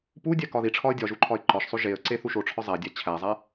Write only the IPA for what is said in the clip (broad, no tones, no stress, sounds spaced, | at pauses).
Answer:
p u dʲ æ k ɒ ð i ʈ͡ʂʰ ɒ ə̯ dʲ ɒ ʒ u ǃʰ ɒ ɪ̯ ǃ ɒ ʃ sˤ o ʒ e ə̯ ǀ e θ u ʃ o ʈ͡ʂʰ ɒ zˤ æ dʲ æ t͡ɕʰ æ zˤ æ